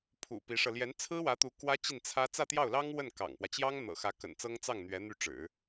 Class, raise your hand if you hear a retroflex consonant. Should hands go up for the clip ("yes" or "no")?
yes